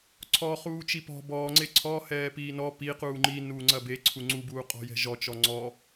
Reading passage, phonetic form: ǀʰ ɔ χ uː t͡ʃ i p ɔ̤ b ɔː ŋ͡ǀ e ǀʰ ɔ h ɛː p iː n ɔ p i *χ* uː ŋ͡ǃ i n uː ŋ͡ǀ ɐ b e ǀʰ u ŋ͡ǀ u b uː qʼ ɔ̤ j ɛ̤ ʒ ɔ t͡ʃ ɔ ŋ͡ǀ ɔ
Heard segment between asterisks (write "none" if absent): q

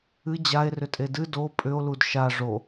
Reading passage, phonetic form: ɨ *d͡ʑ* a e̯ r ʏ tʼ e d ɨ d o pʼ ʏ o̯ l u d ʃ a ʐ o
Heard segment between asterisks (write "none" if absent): d͡ʑ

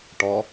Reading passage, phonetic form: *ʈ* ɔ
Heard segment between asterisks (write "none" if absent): ʈ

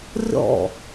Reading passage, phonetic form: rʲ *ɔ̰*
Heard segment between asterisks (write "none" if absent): ɔ̰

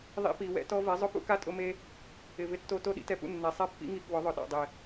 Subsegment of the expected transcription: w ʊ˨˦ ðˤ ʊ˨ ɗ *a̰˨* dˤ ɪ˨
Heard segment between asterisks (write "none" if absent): a̰˨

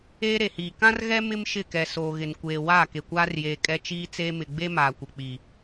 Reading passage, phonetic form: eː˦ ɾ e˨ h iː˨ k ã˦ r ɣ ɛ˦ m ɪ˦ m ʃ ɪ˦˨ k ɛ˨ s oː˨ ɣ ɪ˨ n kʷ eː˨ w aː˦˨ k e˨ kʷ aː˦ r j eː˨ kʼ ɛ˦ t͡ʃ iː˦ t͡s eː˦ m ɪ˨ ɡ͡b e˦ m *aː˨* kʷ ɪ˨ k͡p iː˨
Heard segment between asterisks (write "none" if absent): aː˨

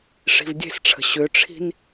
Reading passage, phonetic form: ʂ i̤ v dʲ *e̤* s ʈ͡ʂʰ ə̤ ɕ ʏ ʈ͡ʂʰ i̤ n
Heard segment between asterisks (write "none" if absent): e̤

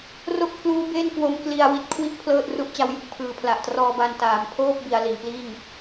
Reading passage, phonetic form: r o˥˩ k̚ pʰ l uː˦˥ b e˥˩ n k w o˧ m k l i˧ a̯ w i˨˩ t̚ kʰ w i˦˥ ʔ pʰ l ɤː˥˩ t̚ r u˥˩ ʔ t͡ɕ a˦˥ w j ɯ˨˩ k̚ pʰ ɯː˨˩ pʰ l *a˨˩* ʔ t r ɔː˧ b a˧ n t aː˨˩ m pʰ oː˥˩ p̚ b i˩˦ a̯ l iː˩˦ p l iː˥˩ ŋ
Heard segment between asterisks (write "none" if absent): a˨˩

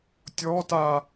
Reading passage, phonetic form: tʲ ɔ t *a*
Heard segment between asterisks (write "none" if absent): a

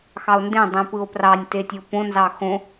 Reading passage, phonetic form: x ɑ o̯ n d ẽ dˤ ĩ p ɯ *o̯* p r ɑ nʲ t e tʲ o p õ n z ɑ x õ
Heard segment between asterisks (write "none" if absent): o̯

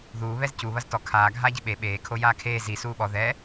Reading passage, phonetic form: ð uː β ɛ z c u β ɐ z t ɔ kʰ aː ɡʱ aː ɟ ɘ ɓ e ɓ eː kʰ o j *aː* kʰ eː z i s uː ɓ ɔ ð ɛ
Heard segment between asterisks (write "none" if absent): aː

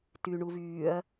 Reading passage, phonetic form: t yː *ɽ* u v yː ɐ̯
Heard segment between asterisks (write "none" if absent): ɳ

